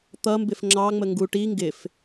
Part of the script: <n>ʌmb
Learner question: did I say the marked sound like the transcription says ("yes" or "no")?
no